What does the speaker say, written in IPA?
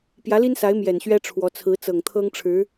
p j ä˧˥ l i˥ n s a˧˥ ɪ̯ m j ɛ˨˩ n ɕ ɥ ɛ˥ ʈ͡ʂʰ w ɔ˧˥ t͡sʰ ɹ̩˧˥ t͡s ɤ˨˩ ŋ t̪ʰ ɤ˥ ŋ ʈ͡ʂʰ ɻ̩˧˥

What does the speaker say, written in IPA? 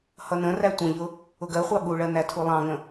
h ʌ n ə̃ r æ tʷ ə̃ ʎ ʊ | ʊ ɡ ɜ χʷ ɑ ɠ u ɭ ɜ n æ tʰ u lˠ ɑ̃ ŋ ə̃

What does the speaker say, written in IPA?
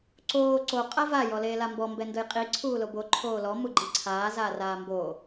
ǀ oː ǀ o qʼ a v a j ɔ l eː l a m b ɔ m b ɛ n d ʊ j qʼ i ǀʰ uː l o b o ǃʰ oː l ɔ m u ɡ͡ǃ i ǀʰ aː z aː r aː m b oː

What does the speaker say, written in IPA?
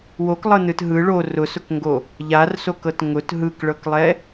w o k lˠ ɤ n ɯ t ɦ ɯ ɭ o r ʊ s ʊ k ŋ ɡ o | ʎ a r s o k ɤ t ŋ ʊ t ɦ ɯ k ɭ ɤ k lˠ ɛ

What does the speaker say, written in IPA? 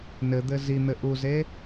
n ɘ d̪ ɘ z i n̪ ɘ ʔ u z e

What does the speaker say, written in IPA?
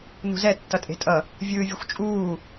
n ṳ z ɛ tː ʌ tʼ e̤ tʼ ʌ | vʲ ɯː vʲ u xʷ t͡ʃʼ uː

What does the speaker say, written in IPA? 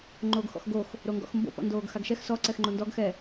ŋ͡ǃ oː ɡ x ɔ̰ x ɡ o x | ɾ o ŋ ɡ ɔ̰ x m b o̰ p ɔ̰ n d oː ɡ x a ɡ ʃ ɛ x s ɔ ǀ ɛ x ŋ͡ǃ o n d ɔ ɡ x ɛ

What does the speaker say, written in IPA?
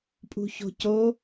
pʼ ṳ ç o̤ c o

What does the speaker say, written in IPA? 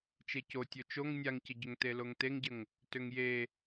t͡ʃ e c o tʲ o t͡ʃ o ŋ nʲ a ŋ c ə ɟ ʏ ŋ t e l o ŋ t e ŋ ɟ ə ŋ | t ʏ ŋ j e

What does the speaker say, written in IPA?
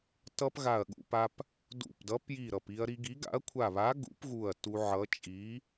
t ʌ˧ p ɣ a˧˩ ɐ̯ ɠ ṵ˧ p a˧ p | d ṵ˧˩ p d ʌ˨˥ p j i˧˩ ɾ ʌ˧˩ p i˧ ɐ̯ ɾ i˧ ɡ i˨˥ ɡ a̰˨˥ ɐ̯ kʷʰ a˧˩ β a˨˥ ɡ ṵ˨˥ p ɣ u˧˩ ɐ̯ t u˧ ʕ ʌ˨˥ t͡ʃʼ i˨˥

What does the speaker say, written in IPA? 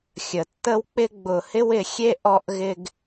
xʲ ə˨ tː ə˦ w k͡p ɪ˦ ɡ͡b ʊ˨ h ɪ˦ w ɪ˧ xʲ e˦ ʔ ɔ˦ ʔ ɣ ɪ˦ ɡ

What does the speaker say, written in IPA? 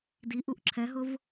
d i ʔ u ʔ ǁʰ ɛ ɦ ʊ v

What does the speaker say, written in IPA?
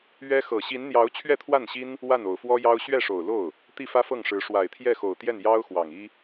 ɥ ɛ˥ x ɤ˨˩ ɕ i˧˥ n n̪ j ɑ˧˥ ʊ̯ t͡ɕʰ ɥ ɛ˥˧ t̪ʰ w a˥˩ n ɕ i˥ n | w a˥˩ n o˨˩ ʊ̯ f w ɔ˥ j ɑ˥ ʊ̯ ɕ ɥ ɛ˥˩ ʂ o˨˩ ʊ̯ l o˥˩ ʊ̯ | t̪ i˥˩ f ä˥ f ɤ˥˩ ŋ ʂ ɻ̩˧˥ ʂ w a˨˩ ɪ̯ t̪ʰ j ɛ˥˩ x o˨˩ ʊ̯ t̪ j ɛ˥˩ n j ɑ˥ ʊ̯ x w ɑ˨˩ ŋ i˥

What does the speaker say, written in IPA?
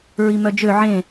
ɹ i m œ d͡ʒ ø ʕ ẽ

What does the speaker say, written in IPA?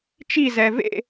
t͡ʃ i z ɛ v ḛ

